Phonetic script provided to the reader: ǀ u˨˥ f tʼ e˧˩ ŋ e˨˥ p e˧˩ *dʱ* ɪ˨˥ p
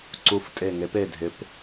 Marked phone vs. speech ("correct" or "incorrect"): correct